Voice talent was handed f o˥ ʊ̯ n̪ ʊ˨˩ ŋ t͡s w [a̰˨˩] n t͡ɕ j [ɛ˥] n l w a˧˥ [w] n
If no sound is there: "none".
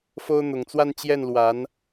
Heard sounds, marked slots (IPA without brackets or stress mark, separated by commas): a˥˧, ɛ˥˩, none